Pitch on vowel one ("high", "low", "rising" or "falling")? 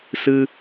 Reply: high